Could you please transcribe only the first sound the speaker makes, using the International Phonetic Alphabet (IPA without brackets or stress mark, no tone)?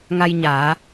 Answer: ŋ